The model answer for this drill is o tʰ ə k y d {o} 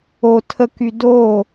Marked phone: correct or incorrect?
correct